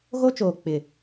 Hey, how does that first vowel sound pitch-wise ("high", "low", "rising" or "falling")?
high